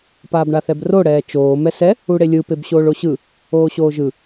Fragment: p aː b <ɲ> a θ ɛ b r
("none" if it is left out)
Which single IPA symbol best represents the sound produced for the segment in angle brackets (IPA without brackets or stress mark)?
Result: ɳ